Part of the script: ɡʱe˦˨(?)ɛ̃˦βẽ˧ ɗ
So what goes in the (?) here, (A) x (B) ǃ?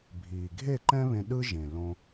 B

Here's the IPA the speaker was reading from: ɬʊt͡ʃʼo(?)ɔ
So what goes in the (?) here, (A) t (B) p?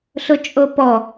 B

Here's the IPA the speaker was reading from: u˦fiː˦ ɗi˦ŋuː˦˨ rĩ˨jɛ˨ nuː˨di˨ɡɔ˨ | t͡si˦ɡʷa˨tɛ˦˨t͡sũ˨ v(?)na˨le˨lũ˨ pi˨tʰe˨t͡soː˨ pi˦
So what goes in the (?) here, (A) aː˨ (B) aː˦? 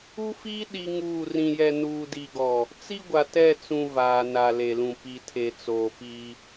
A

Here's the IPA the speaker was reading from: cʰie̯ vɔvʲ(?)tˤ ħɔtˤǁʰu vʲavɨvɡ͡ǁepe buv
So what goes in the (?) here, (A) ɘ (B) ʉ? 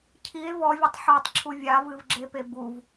A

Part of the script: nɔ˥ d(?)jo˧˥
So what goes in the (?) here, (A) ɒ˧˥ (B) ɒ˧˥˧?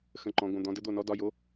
B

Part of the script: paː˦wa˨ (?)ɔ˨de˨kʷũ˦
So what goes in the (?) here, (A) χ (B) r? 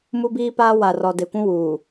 B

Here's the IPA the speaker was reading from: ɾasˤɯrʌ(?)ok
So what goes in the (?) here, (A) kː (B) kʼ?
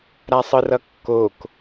A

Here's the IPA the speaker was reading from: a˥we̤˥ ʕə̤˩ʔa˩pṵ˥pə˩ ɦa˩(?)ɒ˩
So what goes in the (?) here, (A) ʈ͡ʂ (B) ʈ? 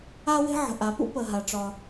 A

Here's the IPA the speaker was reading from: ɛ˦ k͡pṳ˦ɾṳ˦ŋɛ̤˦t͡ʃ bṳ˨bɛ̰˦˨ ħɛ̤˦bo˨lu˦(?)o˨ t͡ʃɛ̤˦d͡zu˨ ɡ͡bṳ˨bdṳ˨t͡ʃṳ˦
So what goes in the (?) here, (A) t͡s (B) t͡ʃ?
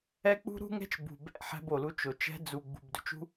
B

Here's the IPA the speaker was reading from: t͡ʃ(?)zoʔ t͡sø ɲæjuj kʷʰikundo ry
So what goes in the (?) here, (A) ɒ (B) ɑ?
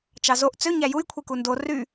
B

